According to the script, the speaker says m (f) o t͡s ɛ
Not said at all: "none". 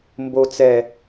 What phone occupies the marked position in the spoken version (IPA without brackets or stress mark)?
b